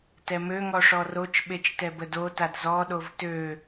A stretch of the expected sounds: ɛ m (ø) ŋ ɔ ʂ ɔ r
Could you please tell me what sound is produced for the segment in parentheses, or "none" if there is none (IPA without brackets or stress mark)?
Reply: ø